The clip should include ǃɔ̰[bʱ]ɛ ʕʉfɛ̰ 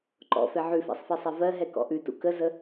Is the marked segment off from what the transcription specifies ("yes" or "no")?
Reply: yes